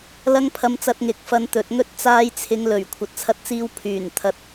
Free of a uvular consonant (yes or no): yes